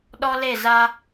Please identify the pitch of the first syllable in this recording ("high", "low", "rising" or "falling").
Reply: high